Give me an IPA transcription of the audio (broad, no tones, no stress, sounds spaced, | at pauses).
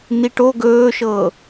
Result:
n i ʈ o ɡ ɵː ʃ ɤː